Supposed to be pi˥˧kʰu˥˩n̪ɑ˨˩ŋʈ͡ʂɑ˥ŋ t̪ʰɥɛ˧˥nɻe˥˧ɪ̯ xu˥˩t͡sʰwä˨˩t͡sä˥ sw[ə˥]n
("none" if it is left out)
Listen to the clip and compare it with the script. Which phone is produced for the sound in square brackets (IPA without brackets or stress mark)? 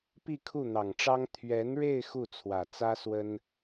ə˥